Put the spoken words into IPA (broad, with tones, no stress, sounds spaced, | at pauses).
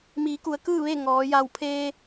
m iː˩˧ k u˩˧ ə̯ k ɯː˥˨ ʋ e˥˨ ŋ ɔː˩˧ j a˧˩ w pʰ eː˧